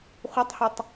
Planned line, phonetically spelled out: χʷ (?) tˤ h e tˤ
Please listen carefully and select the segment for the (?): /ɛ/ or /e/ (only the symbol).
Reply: e